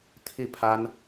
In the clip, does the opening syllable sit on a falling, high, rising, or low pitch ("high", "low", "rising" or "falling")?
falling